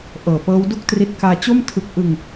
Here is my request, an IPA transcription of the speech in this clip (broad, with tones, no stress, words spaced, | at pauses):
ʔɤː˨˩pɤː˦˥wdu˥˩k̚tri˦˥t̚ kaː˧t͡ɕo˥˩m tʰɯ˦˥k̚ ʔɯ˧ŋ